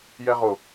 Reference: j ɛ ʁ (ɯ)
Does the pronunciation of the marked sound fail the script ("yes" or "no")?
yes